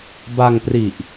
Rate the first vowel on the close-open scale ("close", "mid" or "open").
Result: open